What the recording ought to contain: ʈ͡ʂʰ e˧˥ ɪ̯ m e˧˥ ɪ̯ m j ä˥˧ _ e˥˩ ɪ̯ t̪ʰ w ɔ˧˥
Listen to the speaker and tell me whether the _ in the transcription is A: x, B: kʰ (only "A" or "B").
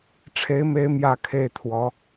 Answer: B